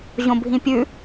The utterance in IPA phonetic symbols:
ʑ õ bʱ ĩ pʲ ʉ

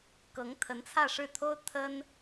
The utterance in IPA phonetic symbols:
k ɤ˧˥ ŋ t̪ʰ ə˧˥ n t͡sʰ ä˥˧ ʂ ɻ̩˥˩ t̪ʰ o˥ ʊ̯ t̪ʰ ə˥ n

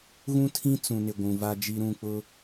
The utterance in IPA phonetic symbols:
ɣ ũ˦ tʰ ĩ˦ t͡s ũ˨ n ɪ˨ ɡʷ ũ˨ v a˦ d͡ʒ i˦ ɾ ũ˦˨ k͡p ʊ˦

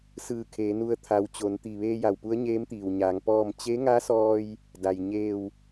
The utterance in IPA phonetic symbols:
s ɯː˧˩ kʰ eː˩˧ n u˧ ə̯ t̪ʰ a˩˧ w t͡ɕ o˩˧ n t̪ i˩ ʋ eː˧ j a˩ w p u˧˥ ə̯ ɲ eː˧˥ m t̪ iː˩ w ɲ aː˩˧ ŋ p ɔː˥˨ m t͡ɕ e˧˥ ŋ a˧˥ s ɔː˧ j | d a˩ j ɲ eː˧˩ w

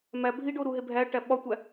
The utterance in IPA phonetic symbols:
m æ bʱ i ɖ o ɾ u ɦ e bʱ æ ʈ æ ɓ ɒ tʷ æ

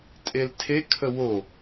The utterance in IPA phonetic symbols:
tʼ e l tʰ e kʰ ə w o

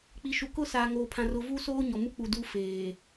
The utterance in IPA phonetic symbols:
k͡p i˨ ʃ u˨ k ʊ˦ s aː˨ ŋ oː˨ pʰ ã˨ r ʊ˨ v u˦ s oː˦ ɲ ɔ˨ m u˦ k͡p u˨ d u˦ f eː˨

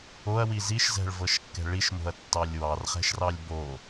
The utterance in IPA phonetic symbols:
o ɐ̯ w i z i ʃ z ɛ̤ ɭ v ɤ ʃ kː ɛ̤ ɭ i ʃ m o̤ ɐ̯ tː ɑ lʲ w ɑ r χ ɛ̤ ʃ r ɑ lʲ b o

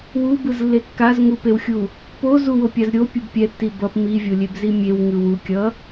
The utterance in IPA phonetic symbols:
w u b ɯ z lː e kː a z ŋ u p e w xʲ u | p o z u w o pʲ a z ɾʲ o pʲ u b pʲ ɛ tː i b ʌ p m i vʲ o lʲ e b z i mʲ e w ŋ ɯ w u kʲ ʌ

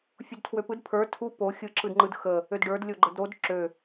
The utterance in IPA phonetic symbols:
fʲ u d tʰ w ø p ɯ d pʰ ə˞ tʰ u p o xʲ ɯ ǁ ɯ d ŋ͡ǃ ɯ d x ə | ø d ɖ ə˞ d lʲ o ɡ͡ǃ ə d ɾ o d ǁ ø

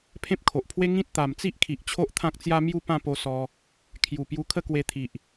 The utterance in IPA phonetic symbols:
pʰ ẽ˦ p̚ kʰ o˨ ʔ pʰ w e˦ ŋ ĩ˦ t̚ t̪ a˨˩ m t͡s i˦ ʔ kʰ i˨ ʔ t͡ɕʰ o˦ ʔ t̪ʰ ã˦ k̚ t͡s j a˦ m j u˥˧ p ã˥˧ p o˧ s ɔ˧ | kʰ j u˨˩ p j u˧ kʰ ə˥˧ k w e˧ t̪ʰ i˨ ʔ

